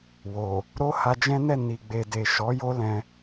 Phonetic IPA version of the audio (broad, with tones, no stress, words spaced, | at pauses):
wo˨ | ɾo˦ha˧d͡ʒɛ̃˦nɛ˦˨ ni˨ ɡ͡be˨de˨ ʃɔ˨˦ jo˦lɛ̃˧